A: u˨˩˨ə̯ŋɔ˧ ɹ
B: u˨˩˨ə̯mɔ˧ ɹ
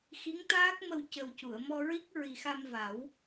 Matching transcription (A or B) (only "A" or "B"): B